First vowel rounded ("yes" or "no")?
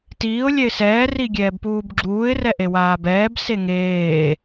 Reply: no